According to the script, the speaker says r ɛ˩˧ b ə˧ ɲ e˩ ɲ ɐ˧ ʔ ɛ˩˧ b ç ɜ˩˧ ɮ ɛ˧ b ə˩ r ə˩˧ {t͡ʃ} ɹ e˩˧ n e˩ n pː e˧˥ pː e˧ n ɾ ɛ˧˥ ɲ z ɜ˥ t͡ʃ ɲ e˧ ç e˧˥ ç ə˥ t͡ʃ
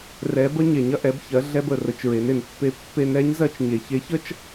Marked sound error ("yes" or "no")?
no